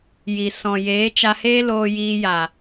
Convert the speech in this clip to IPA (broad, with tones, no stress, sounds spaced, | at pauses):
j i˨ s ɔ̃˨ j eː˨˦ t͡ʃ a˧ h eː˦ l oː˧ j iː˧ j a˨